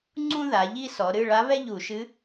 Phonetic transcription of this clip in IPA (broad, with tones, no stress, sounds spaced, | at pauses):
ŋ͡ǀ ũ˥ ð a˩˧ ʎ i˥ s ɔ˩˧ ɾ ɨ˧˥˧ ɭ a˧˥ β ɛ˥ ʎ u˧˩˧ ʃ ɨ˧˥